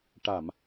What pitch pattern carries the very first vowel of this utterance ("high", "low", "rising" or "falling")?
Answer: low